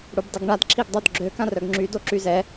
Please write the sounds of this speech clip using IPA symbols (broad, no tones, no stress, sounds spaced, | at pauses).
ɽ u b dˤ i ɡ ɳ a d ǁʰ i ɡ dˤ o d ɡ͡ǁ ø k ã r œ ɡ ŋ͡ǁ y d o ǁ y z ɛ